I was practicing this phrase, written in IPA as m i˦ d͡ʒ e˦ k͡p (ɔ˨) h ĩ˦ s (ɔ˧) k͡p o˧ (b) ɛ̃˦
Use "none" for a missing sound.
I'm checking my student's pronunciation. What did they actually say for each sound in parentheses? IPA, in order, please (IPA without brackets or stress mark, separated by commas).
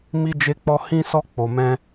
ɔ˦, ɔ˦, m